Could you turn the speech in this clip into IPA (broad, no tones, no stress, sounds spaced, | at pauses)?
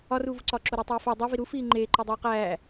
ɒ r uː v u ǀ ɒː ǁ o ɾ æ tˤ iː f æ dˤ o v i ɾ u f iː ŋ͡ǃ eː ǃ o dˤ oː q æː